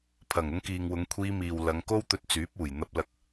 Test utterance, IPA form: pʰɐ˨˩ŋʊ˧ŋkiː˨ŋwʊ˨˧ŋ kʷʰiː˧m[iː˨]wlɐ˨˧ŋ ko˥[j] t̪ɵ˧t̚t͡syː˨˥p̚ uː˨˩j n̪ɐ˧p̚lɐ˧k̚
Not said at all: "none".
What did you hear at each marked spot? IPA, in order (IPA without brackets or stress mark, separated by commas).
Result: iː˨, w